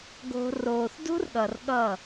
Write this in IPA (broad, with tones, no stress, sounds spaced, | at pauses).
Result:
ɡ o̤˧ r oː˨ θ d ṳ˦ r ɠ ʌ˨ r ɠ ʌ˦˨